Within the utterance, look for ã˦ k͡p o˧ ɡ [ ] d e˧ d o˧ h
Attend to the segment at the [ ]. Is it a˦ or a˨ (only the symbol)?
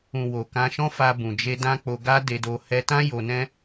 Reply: a˦